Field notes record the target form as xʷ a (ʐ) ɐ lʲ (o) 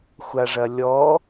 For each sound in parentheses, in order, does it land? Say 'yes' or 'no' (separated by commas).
yes, no